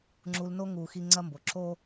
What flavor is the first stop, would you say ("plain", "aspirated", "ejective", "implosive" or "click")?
click